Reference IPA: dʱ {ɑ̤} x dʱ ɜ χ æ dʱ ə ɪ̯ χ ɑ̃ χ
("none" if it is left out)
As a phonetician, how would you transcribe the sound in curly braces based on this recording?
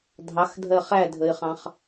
ɑ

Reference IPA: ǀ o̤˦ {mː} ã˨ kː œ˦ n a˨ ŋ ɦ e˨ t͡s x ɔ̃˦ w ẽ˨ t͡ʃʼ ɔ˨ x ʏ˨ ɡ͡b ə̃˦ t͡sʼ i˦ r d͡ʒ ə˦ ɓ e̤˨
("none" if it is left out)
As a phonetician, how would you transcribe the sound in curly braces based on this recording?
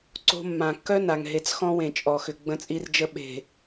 mː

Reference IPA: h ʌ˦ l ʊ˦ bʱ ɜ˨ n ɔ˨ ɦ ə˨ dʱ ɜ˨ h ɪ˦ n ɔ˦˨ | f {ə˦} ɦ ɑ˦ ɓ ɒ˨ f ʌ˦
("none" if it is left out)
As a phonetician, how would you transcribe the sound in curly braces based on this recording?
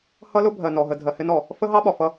ə˦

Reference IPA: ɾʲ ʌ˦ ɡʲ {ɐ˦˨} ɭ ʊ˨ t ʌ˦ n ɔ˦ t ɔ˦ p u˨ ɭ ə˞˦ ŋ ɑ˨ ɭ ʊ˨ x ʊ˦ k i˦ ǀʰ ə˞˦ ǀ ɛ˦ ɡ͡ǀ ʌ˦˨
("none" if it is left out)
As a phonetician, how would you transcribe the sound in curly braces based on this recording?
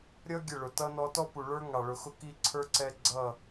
ə˦˨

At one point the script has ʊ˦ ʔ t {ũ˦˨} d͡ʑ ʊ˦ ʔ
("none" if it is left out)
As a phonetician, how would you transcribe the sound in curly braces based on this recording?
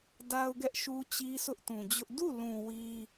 ũ˨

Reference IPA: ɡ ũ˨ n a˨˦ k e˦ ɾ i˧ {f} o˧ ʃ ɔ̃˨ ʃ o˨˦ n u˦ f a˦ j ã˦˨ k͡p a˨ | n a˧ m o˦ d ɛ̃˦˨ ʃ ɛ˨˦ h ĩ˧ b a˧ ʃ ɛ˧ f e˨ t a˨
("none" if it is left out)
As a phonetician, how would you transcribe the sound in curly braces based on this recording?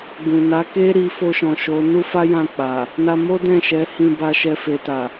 f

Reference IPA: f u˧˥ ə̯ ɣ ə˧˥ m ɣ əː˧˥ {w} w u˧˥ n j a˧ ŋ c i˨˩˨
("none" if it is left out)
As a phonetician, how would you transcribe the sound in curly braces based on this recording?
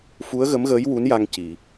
j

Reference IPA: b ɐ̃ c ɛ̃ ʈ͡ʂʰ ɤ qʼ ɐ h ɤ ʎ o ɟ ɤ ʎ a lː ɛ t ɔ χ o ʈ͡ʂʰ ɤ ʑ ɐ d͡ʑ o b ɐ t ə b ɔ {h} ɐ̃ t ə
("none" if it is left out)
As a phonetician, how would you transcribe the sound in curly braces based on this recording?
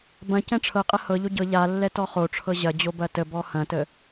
h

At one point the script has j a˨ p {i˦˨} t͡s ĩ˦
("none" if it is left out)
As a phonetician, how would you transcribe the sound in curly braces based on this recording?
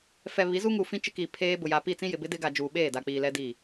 i˦˨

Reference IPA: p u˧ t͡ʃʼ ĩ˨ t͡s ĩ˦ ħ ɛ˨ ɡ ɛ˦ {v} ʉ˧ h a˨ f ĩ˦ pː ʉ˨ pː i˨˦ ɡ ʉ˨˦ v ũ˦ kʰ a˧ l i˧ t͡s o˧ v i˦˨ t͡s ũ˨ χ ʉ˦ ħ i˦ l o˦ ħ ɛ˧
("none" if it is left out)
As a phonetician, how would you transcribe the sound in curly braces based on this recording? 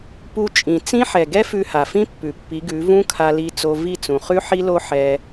f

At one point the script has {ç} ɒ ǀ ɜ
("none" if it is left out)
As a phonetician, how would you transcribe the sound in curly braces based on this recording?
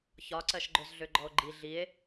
ç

